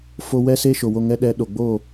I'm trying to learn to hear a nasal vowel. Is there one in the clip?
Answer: no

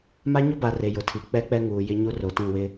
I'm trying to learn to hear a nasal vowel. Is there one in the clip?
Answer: yes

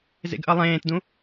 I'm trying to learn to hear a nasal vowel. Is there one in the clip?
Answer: yes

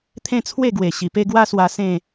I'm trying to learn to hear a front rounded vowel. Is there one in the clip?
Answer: no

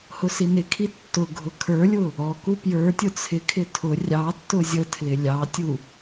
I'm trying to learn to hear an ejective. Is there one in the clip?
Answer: no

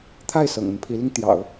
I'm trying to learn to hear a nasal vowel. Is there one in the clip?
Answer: no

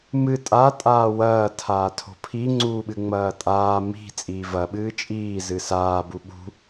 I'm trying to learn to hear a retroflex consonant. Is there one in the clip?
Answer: no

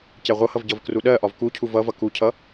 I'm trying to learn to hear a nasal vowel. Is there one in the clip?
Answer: no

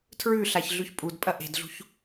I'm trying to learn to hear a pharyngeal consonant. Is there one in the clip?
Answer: no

